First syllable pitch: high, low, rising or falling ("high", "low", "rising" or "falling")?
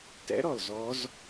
rising